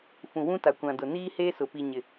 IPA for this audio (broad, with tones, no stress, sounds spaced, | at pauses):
f ũ˨ w ũ˦ t a˨ kʷ ã˨ d ʊ˨ n iː˦ h eː˦ s ʊ˨ p i˨ ɲ ɪ˨